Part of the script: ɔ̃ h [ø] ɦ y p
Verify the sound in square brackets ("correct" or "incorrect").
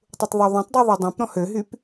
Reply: correct